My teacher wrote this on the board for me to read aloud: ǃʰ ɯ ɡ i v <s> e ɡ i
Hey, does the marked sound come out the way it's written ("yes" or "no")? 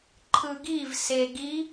yes